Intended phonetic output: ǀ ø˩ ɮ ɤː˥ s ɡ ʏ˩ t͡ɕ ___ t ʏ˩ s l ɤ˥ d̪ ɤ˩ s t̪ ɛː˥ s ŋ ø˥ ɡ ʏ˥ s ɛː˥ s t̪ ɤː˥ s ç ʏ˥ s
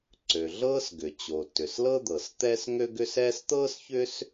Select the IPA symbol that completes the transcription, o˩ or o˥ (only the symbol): o˩